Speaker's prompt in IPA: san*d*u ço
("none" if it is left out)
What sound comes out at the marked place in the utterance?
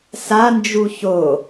d͡ʒ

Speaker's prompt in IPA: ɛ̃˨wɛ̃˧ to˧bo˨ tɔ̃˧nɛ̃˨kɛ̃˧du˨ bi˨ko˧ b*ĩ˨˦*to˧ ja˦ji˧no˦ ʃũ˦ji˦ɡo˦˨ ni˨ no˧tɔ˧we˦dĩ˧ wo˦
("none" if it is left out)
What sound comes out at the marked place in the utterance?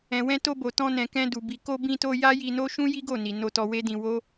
ĩ˧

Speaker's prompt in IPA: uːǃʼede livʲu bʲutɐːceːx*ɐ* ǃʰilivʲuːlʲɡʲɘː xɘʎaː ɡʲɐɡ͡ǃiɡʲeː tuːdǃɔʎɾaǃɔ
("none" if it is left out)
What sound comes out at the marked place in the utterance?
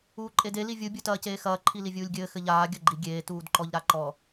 ɐː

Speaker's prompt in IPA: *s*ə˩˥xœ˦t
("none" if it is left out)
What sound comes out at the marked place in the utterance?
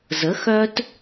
z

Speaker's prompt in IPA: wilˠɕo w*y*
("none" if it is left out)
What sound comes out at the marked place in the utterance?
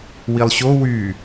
y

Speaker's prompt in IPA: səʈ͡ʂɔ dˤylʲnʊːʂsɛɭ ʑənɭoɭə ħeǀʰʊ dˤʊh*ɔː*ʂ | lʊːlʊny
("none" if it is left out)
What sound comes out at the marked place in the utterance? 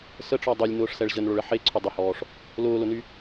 ɔː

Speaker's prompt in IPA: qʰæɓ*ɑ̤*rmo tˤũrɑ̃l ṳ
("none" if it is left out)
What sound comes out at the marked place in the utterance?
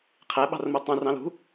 ɑ̤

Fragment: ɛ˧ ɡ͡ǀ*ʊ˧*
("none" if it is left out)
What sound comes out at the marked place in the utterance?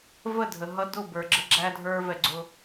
ʊ˧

